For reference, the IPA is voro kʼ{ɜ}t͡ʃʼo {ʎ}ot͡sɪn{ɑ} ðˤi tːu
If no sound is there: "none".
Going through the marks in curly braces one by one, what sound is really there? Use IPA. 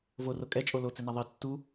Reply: ɛ, l, a

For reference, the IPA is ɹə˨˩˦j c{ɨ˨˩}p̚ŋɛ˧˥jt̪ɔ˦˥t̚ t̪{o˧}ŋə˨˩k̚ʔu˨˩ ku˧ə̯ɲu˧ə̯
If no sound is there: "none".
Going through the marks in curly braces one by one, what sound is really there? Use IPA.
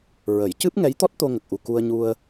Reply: ɨ˦˥, o˧

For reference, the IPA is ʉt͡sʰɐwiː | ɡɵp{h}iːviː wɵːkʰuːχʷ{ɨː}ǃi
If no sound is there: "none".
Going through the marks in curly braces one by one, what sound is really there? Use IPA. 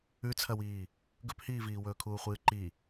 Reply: h, ɨː

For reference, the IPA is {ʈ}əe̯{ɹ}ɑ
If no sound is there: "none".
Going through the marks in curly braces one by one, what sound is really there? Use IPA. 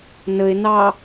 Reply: n, n

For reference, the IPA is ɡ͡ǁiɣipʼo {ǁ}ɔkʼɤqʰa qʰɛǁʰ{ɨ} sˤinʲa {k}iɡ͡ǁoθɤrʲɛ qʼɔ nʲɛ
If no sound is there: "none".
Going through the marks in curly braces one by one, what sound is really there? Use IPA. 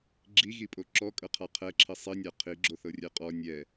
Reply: ǁ, i, qʰ

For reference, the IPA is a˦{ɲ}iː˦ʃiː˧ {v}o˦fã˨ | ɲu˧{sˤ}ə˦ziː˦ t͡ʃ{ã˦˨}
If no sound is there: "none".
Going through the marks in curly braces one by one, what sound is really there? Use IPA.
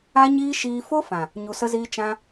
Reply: ɲ, f, s, ã˧

